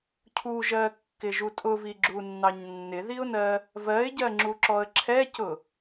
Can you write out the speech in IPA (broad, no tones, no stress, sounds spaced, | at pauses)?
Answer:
cʰ u ʒ ɜ kː ɪ ʒ u tʼ ʊ v i ɡ͡ǁ u nː ɑ ɲ nː ɪ ð i ʊ̯ n ɜ | v ɜ ɪ̯ ɟ ɜ ŋ͡ǁ u ǁ ɔ ə̯ ǁʰ ɛ c ʊ